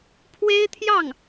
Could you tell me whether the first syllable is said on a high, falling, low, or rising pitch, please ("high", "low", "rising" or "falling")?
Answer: high